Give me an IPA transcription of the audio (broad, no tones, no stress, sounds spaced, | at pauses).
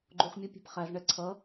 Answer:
ɡ͡ǃ u χ mʲ ʌ pʲ æ̤ p χ æ z ɳ ɛ ǀʰ ʌ